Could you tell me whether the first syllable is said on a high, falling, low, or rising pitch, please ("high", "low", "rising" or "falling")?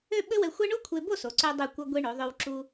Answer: falling